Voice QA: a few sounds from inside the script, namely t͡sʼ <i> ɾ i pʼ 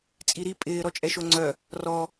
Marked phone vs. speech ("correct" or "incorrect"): correct